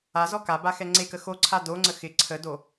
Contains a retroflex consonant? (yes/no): no